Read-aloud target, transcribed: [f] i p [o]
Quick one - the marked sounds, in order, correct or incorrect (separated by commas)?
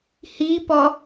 incorrect, incorrect